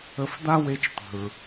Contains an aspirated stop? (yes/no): no